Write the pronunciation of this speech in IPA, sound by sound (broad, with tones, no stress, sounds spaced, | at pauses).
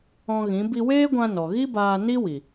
ɔ̃˧ ɣ ĩ˨˦ b i˧ w eː˦ ɡʷ ã˧ n ɔ˨ ɣ i˦ b aː˧ n i˦ w i˨